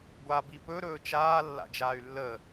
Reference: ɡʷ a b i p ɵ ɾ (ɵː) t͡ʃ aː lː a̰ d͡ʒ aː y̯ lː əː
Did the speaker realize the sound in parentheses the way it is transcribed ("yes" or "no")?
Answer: yes